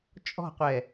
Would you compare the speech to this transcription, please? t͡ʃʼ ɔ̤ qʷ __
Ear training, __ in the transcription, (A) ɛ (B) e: A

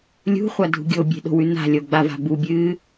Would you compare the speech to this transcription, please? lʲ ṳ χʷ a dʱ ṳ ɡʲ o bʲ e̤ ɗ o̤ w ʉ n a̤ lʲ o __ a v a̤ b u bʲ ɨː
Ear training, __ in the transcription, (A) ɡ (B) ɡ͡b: B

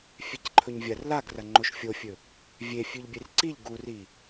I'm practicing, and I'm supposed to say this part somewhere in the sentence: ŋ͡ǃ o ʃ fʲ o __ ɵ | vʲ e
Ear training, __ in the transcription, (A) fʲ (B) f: A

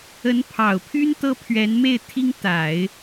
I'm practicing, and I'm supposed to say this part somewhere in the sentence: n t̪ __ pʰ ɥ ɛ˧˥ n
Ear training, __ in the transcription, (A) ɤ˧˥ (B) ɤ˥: B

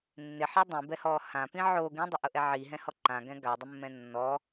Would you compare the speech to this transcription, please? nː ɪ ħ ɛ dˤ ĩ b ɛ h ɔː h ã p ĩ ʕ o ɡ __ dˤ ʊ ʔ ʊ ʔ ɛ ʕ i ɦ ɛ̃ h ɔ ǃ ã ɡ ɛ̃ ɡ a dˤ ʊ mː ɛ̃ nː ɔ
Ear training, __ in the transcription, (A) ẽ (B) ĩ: B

